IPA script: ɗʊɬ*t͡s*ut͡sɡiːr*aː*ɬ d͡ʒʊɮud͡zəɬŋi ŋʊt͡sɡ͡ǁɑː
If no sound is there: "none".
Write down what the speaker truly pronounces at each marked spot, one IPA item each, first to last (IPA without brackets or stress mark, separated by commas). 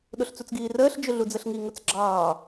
t͡s, əː